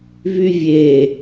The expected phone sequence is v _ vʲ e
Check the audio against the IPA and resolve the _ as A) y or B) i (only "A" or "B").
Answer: A